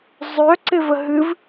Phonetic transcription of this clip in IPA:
zˤ œ ǀ ɪ v ə ɦ ɨ v

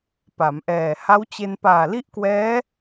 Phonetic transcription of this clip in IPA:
p a˩˦ m ʔ ɛː˨˩ h a˦˥ w t͡ɕ e˧ n p aː˨˩ l i˥˩ ʔ k w ɛː˦˥

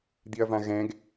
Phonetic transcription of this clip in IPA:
d̪ i ɐ̯ v ã ɣ ɛ̃ ɡ

